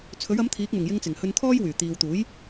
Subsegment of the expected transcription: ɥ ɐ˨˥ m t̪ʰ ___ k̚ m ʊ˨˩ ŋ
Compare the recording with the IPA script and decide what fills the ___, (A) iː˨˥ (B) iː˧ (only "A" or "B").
A